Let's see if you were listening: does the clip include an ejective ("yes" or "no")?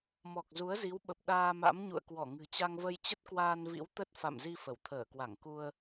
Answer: no